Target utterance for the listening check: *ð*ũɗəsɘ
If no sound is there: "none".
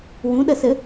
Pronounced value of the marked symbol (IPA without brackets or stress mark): w